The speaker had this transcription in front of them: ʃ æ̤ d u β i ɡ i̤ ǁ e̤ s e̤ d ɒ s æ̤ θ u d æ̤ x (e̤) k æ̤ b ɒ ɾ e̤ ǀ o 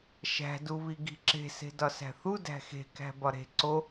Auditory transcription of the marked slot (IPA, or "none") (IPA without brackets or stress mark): e̤